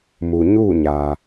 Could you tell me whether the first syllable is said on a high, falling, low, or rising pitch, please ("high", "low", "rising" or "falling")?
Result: low